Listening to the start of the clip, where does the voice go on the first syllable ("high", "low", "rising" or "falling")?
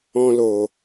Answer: high